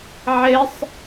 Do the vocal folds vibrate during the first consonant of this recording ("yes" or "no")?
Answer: yes